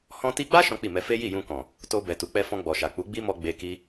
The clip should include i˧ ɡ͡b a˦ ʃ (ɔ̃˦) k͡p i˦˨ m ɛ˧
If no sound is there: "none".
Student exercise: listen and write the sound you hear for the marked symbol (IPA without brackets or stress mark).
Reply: ɔ̃˦